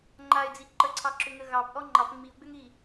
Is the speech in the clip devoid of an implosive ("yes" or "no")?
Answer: yes